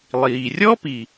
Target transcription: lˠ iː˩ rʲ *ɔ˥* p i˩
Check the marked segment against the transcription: correct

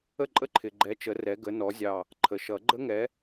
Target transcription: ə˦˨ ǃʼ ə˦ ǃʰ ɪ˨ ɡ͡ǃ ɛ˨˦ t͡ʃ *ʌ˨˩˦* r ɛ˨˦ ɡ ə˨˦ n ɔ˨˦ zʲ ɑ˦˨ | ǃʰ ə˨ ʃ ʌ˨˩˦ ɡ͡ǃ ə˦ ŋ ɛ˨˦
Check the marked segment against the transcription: incorrect: ə˨˩˦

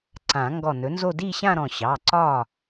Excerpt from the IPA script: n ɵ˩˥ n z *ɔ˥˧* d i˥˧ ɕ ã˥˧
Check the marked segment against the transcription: incorrect: o˥˧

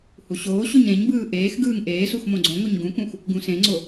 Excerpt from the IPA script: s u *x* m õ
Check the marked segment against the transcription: correct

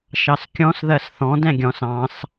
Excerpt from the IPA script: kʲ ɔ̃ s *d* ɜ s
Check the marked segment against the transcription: incorrect: ð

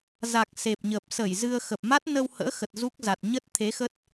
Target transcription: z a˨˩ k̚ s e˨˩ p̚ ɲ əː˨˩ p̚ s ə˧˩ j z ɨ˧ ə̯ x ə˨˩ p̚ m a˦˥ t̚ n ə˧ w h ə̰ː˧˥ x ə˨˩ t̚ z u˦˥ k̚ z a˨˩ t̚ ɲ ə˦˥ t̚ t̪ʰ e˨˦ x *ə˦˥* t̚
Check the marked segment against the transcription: correct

